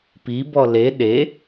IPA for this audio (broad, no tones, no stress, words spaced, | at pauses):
pibɔ le ɗe